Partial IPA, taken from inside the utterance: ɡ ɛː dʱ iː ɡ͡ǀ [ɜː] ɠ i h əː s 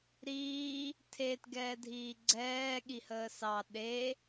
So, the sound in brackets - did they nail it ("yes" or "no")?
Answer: no